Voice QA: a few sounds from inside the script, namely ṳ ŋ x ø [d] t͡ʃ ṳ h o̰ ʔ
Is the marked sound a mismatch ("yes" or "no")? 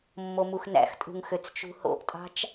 yes